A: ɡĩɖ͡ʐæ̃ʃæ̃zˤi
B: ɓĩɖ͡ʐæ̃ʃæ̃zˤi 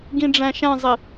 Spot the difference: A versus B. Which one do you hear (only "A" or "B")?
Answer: A